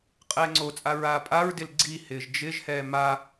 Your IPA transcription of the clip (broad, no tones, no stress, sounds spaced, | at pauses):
qʼ ɛː ŋ͡ǀ o t͡sʼ a ɹ aː pʼ a ɹ d ɪ l ɡ͡ǀ i h ɪː ʒ d͡ʒ ɪ ʒ h ɛː m a